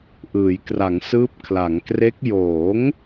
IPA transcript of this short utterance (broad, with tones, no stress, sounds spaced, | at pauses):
ʔ ɯː˩˦ j k r a˩˦ ŋ s ɯː˦˥ p̚ kʰ l a˩˦ ŋ k r e˦˥ k̚ j oː˩˦ ŋ